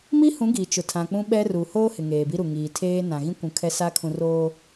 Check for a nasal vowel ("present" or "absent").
present